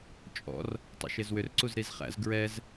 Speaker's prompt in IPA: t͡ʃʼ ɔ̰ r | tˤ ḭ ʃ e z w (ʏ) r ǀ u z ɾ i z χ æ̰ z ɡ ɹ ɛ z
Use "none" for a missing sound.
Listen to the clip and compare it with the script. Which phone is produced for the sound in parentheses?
ʏ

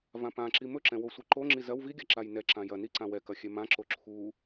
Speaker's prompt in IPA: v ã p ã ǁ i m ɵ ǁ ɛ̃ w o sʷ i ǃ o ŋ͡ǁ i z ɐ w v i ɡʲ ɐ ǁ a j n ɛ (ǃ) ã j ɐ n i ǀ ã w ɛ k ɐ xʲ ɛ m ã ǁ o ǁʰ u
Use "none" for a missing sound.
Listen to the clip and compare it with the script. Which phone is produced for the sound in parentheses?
ǁ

